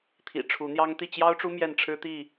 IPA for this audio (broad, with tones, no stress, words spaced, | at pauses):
t̪ʰḭ˨˩ʈ͡ʂʰu˨˦n̪jɑ˦ŋ t̪i˥˨t͡ɕjɑ˦ʊ̯ʈ͡ʂu˦ mjɛ˥˨nʈ͡ʂʰɻ̩˦t̪i˥˨